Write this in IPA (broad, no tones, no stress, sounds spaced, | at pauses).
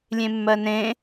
lʲ ẽ mː ɜ n ẽ